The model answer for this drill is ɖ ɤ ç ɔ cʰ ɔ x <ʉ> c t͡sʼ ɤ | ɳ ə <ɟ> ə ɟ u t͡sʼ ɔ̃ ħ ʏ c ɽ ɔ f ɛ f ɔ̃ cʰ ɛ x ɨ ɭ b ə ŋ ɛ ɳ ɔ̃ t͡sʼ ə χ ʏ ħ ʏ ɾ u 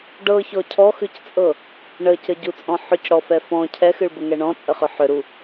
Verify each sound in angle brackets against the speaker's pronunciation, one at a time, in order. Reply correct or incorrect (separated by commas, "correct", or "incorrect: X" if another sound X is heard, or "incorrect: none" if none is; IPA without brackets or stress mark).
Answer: correct, incorrect: c